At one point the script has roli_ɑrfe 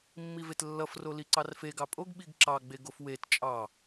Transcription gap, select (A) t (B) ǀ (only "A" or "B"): B